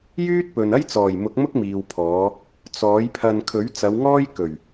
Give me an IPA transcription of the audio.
j yː˥ t̚ p ɵ˨ n ɐ˥ j t͡s ɔː˨˩ j m ʊ˨˥ k̚ m ʊ˥ k̚ m iː˨ w pʰ ɔː˨˧ | t͡s ɔː˨˥ j pʰ ɐ˧ n kʰ ɵ˨˥ ɥ t͡s ɐ˨˧ w ŋ ɔː˥ j k ɵ˨˩ ɥ

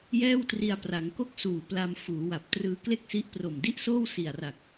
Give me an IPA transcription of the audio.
j ɛː˥˩ w t r i˧ a̯ p r a˩˦ ŋ k o˥˩ k̚ s uː˨˩ p l a˧ m f uː˩˦ w a˨˩ p̚ t r ɯː˧ k l e˥˩ k̚ s i˦˥ ʔ p r o˨˩ m d i˥˩ ʔ s oː˥˩ w s i˨˩ a̯ r a˨˩ k̚

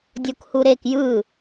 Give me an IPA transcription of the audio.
dʲ o k h u ɾ e k j ɯ

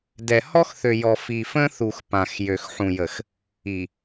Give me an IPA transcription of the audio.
d ɛ˨ h ɔ˦ x θ ø˨ j ɔ˨ f i˨ f ə̃˦ θ u˨ x p ã˨ x j ø˨ x ħ ũ˨ j ə˨ x | i˨

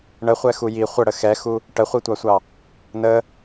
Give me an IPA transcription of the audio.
ɳ ə χʷ ɛ x u j i χʷ ə ɽ ə x ɛ x u | ʈ ə χʷ i tʷ ɑ sʷ ɑ | n ə

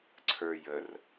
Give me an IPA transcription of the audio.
ǀʰ ə˞ j ə r

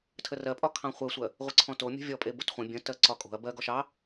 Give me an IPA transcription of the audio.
tʰ ə r ɜ pʼ ɒ kʰ ɑ̃ χʷ ɜ sʷ ɜ | ʁʷ ə ǀʰ ɔ̃ t o mʲ o̤ vʲ ɔ pʼ e b o t χʷ ə̃ bʲ ə̃ t ɜ ǀ ɒ kʼ o̤ ɐ̯ b ɜ ɡ ɔ ʃ ɑ

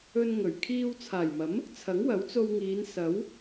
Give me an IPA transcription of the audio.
ɵ˧ n ŋ ɵ˨˩ ɥ kʰ iː˧ w t͡sʰ aː˨˩ j m ɐ˨˥ m | t͡sʰ ɐ˨˥ ŋ w ɐ˨˥ w t͡s o˧ w ŋ iː˨˧ n s ɐ˨˥ w

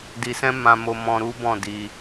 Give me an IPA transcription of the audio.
d i˧ s ɛ̃˦ m ã˧ m o˧ m ɔ̃˧ ɾ u˦ b ɔ̃˦˨ d i˧

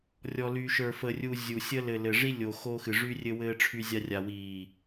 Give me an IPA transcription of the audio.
rʲ ɔ˨ l y˨ ʃ ə˞˨ f ə˨ rʲ u˦ zʲ u˨ sʲ ə˦ l ɘ˨ l ɘ˨ ʐ i˦ lʲ o˨ x o˦ x ɨ˨ ʐ y˦ rʲ ɘ˦ w ɘː˦ ʈ͡ʂʰ y˦ zʲ a˦ rʲ a˨ w iː˨

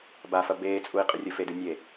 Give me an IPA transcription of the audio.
b a f ɐ b eː t͡sʼ u i̯ qʼ ɨ rʲ ɵ f e d ʉ nʲ e

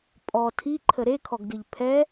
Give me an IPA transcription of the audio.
pʼ ɔ tʰ i ǃʰ ə ɾ e kʰ ɔ ɡ d ɨ ʎ pʰ ɛ

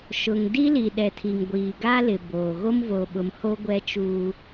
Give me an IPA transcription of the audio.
ʃ ʊ˨ ŋ d i˦ l i˨ ɗ ɛ˨ tʰ i˨ ŋ ɡʷ iː˨ ɡ a˦ l ɪ˨ b oː˨ ɣ o˦ m v o˨ ɓ ʊ˨ m h o˦ ɡʷ ɛ˦ t͡ʃ uː˦

